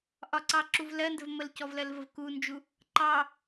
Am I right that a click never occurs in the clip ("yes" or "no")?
no